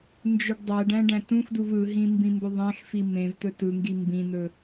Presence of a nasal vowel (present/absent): present